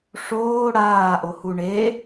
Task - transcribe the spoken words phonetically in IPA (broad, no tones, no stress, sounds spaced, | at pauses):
ʂ oː ɽ aː ʔ o h u ɳ e